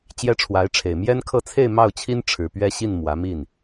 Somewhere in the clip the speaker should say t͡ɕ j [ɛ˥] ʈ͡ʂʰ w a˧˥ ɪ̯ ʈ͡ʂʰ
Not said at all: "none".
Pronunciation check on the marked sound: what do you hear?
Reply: ɛ˥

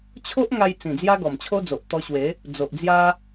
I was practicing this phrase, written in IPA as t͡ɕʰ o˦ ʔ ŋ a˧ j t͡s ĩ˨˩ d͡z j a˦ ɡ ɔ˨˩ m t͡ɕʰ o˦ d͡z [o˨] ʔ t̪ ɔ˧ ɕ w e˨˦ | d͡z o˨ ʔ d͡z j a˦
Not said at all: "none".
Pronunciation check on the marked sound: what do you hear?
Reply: o˨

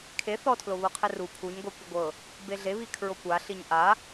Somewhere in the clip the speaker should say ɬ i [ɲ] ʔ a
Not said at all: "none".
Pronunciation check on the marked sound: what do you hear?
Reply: ɲ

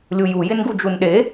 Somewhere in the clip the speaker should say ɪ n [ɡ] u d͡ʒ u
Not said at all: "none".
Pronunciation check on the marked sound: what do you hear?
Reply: ɡ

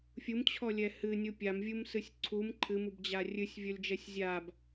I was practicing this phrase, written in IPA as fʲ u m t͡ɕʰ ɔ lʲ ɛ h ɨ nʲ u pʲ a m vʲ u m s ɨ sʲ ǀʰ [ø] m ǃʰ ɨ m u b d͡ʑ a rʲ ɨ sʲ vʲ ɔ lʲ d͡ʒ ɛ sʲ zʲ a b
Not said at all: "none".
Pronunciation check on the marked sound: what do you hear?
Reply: u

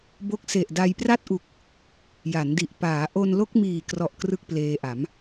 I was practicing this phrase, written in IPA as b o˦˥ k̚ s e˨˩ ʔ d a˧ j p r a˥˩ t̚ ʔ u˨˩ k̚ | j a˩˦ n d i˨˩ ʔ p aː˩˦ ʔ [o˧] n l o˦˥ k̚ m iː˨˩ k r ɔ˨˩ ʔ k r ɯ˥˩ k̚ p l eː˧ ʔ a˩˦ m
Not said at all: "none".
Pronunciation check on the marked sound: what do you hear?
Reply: o˧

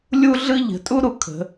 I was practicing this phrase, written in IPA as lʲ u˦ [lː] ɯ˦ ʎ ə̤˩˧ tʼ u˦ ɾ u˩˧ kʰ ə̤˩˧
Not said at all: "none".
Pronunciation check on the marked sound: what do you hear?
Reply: ɮ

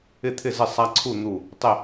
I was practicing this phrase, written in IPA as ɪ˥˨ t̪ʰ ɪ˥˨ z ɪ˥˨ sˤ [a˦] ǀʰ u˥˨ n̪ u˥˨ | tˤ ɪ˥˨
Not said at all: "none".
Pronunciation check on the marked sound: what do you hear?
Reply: a˦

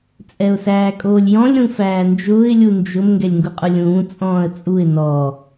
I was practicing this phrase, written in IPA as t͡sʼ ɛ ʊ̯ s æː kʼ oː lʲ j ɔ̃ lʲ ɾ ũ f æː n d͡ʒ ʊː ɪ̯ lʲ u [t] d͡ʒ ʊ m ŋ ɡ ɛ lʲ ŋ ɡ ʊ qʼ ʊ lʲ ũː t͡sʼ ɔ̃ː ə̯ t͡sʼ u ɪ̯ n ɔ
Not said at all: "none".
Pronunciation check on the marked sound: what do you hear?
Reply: n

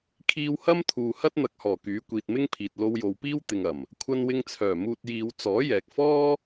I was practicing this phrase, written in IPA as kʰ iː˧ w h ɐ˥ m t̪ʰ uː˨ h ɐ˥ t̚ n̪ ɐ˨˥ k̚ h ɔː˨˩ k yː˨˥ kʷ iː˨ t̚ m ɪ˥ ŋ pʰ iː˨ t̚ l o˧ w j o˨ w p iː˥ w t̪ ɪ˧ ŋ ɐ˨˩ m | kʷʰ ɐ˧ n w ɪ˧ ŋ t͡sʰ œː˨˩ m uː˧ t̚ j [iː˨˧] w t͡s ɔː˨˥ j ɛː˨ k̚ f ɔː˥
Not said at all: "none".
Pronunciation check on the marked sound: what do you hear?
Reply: iː˨˧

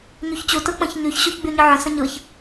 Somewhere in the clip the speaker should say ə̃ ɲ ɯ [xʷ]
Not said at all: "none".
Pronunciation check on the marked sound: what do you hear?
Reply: ç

